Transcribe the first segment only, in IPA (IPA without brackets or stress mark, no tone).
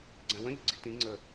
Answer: ɡ͡ǀ